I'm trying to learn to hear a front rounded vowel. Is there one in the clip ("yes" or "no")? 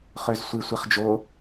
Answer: yes